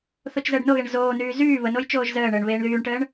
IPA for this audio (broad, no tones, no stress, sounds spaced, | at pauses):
θ o t͡ʃ z əː ɖ n o ɣ e ɳ z oː n yː z yː β ə n o j t͡ʃ oː ʒ z əː ɳ əː ɳ β eː ɳ ð yː ɳ ʈ əː ɳ